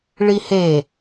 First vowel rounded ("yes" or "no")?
no